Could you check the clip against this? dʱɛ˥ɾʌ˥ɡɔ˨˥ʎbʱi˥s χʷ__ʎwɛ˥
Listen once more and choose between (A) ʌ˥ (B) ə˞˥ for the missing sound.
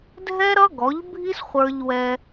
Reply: B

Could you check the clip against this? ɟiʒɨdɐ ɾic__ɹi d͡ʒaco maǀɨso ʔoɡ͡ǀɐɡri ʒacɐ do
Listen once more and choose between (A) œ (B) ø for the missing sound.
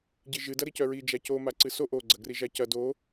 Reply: A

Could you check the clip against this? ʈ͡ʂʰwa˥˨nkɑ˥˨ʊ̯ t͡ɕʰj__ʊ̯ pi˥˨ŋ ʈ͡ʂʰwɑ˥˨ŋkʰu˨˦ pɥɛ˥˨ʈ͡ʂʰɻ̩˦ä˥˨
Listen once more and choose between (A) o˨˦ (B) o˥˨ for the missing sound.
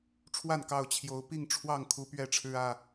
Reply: A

